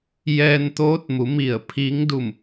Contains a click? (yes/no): no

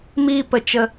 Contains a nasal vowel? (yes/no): no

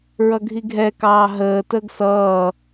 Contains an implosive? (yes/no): no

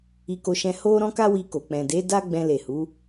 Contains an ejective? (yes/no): no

